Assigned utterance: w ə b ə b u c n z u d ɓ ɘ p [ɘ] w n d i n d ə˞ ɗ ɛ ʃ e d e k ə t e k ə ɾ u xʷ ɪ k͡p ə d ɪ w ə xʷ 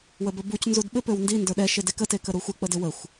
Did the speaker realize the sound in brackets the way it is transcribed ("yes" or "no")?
no